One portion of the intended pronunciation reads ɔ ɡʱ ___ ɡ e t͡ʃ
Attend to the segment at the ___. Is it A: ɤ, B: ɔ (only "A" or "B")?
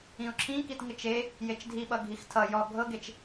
A